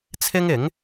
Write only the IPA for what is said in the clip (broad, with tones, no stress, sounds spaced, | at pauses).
t͡sʰ ɪ˥ ŋ ɪ˨˥ ŋ